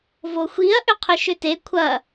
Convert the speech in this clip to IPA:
voxʷiɐ̯ ʔʏqʰʏʃʏte kʷʰɐ

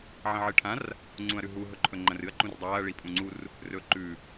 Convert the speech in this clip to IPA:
ʕɐ̃ʕɨʈʰãr | ŋ͡ǀũɐ̯ɾʉɦu ɦɵǃʰɵŋ͡ǃɐ̃rɨɐ̯ ǃũrdˤaːɐ̯ ɭipʼũŋ͡ǀur | rɵːǃʉ

